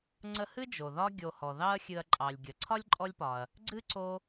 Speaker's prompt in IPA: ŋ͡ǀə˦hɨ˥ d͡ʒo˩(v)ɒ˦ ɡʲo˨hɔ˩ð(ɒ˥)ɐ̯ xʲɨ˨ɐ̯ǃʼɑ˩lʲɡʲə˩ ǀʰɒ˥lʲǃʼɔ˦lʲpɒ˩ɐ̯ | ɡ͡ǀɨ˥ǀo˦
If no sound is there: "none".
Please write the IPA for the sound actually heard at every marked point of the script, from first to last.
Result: ð, ɑ˥

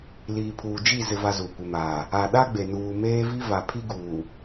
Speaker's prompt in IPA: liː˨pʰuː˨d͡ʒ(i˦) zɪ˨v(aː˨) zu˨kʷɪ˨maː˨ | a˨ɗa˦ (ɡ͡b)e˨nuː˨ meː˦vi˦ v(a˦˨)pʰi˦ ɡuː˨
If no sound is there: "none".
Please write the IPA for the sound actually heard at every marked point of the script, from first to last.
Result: i˦˨, a˨, ɡ͡b, a˨

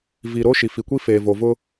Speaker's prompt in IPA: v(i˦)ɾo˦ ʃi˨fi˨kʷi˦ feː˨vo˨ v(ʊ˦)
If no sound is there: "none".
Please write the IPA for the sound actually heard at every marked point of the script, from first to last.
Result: i˨, ʊ˦

